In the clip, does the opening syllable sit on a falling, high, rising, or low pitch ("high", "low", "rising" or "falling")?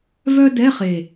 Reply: high